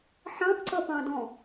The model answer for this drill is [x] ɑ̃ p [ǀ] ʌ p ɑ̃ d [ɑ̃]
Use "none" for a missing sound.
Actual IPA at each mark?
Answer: ħ, ǀ, ɔ̃

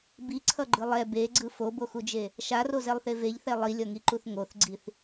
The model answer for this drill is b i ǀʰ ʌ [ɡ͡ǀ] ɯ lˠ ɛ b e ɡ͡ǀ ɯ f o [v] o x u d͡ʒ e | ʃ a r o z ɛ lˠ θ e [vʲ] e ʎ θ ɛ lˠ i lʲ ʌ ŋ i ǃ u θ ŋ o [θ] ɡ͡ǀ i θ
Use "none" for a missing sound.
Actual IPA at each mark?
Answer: ɡ͡ǃ, b, v, θ

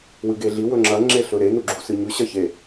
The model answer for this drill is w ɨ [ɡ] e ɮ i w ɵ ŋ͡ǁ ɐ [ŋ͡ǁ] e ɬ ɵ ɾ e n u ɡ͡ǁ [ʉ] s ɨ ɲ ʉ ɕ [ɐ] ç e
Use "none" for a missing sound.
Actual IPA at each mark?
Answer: ɡ, ŋ͡ǁ, u, ɐ

